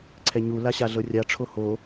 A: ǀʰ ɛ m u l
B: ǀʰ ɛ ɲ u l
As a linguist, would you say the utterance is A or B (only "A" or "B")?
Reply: B